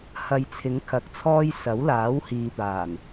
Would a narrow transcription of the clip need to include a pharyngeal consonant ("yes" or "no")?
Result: no